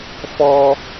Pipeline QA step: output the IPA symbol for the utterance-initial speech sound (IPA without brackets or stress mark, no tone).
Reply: f